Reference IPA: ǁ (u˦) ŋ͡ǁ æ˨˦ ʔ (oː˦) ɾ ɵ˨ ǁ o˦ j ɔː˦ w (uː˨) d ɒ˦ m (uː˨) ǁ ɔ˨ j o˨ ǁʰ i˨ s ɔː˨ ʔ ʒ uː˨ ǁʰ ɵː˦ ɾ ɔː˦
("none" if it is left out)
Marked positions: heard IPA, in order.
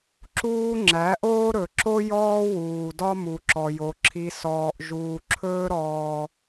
uː˦, oː˦, uː˨, u˨

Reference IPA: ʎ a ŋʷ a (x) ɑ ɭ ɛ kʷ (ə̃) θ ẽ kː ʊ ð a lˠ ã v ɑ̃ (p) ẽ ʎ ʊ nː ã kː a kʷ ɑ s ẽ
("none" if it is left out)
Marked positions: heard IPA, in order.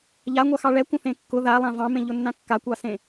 x, ə̃, m

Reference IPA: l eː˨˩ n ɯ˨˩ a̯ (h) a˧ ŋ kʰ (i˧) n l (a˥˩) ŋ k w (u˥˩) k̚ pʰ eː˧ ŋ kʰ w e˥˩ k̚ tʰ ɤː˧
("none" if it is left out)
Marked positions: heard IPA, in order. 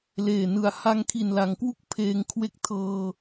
h, i˨˩, a˩˦, u˥˩

